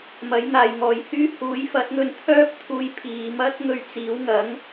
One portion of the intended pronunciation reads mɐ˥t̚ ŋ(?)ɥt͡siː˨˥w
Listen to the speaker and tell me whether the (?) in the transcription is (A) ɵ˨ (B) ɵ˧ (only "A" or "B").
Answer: B